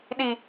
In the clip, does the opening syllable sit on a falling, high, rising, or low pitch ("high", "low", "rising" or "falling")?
low